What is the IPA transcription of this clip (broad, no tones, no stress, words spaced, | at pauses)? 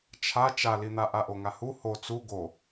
t͡ʃʰa t͡ʃalin̪a ʔaʔoŋahu ho t͡su ɡo